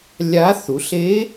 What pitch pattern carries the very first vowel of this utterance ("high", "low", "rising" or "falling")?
rising